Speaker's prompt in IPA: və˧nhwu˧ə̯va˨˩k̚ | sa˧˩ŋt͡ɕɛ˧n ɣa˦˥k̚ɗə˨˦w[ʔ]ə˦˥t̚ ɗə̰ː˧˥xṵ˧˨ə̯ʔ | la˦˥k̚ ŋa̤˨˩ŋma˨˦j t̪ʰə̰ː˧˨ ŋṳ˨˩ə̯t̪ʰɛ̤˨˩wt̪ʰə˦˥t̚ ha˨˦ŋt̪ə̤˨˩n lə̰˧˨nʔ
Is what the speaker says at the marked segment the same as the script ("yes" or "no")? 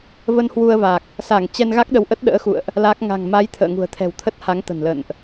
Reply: yes